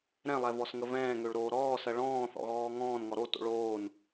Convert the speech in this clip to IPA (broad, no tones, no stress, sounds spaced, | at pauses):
ɾ ɛ̃ lˠ ɛ v ɔ s ŋ ə v ɛ̃ː ŋ ø ɭ ɾ oː ɾ ɔː s ɜ ɭ ɔ̃ː θ ɔ̰ ɣ ɔː ŋ ɔ̃ː n ŋ ɔ ɾ o t o̰ ɭ oː n